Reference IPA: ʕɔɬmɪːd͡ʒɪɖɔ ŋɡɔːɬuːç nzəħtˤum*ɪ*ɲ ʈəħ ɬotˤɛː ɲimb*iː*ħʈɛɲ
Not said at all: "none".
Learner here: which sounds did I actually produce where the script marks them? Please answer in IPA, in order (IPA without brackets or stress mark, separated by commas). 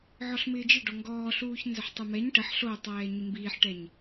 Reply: ɛ, iː